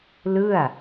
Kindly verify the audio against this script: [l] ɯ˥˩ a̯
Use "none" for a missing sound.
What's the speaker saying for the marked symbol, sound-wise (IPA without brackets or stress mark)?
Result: l